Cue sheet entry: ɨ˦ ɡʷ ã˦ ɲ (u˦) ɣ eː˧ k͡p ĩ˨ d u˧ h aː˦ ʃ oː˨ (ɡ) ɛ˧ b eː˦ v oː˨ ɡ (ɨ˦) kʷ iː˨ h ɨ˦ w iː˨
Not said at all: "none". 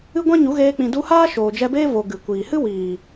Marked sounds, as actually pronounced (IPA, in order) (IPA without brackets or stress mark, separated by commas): u˨˦, d͡ʒ, ɨ˨